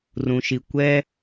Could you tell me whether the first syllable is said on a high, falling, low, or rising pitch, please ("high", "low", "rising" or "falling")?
low